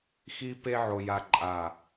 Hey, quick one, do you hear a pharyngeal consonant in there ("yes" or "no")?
yes